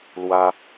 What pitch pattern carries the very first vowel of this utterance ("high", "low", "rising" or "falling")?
high